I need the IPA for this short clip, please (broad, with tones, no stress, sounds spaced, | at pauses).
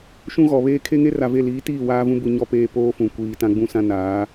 ʃ ũ˦ ɣ ɔ˨ β eː˦ kʰ e˦ ŋ e˦ r a˨ v e˦˨ l iː˨˦ t iː˦˨ w aː˦ v ũ˦ b u˨ ɲ ɔ˨ p eː˨ p oː˦ f ũ˨ kʷ iː˨ t ã˦ ɡ͡b ũ˦ s ã˦ n aː˨˦